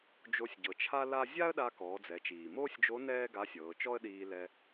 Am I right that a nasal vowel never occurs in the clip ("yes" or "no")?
yes